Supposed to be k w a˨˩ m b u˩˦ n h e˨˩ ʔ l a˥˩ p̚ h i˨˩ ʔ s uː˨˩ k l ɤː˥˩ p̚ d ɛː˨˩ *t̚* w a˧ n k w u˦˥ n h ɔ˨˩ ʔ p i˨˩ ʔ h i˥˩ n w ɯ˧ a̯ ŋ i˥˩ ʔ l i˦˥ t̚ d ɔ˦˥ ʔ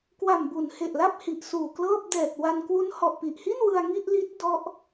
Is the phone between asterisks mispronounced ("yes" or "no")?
no